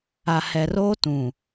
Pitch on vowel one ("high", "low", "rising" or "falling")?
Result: low